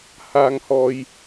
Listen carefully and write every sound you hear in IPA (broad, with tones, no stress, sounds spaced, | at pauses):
h a˧ ŋ h ɔ˧ j